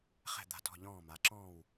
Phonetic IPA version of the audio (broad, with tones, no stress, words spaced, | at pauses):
χɛ̤˧˩d̪a̤˧˩tɔ̤˧˩ ʎɔ̃ː˧˩ma˩˧ǁɔ̃ː˧˩w